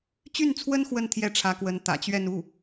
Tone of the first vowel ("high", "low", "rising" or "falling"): falling